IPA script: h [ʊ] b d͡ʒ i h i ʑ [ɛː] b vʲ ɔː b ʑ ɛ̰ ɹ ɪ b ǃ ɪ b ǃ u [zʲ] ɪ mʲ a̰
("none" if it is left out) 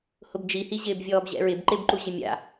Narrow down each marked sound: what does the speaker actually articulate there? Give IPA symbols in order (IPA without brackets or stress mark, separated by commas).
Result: ʊ, ɪː, ʑ